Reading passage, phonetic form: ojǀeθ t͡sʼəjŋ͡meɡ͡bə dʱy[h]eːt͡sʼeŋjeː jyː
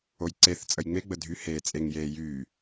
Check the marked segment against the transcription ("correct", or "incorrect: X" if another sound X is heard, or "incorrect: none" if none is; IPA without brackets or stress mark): correct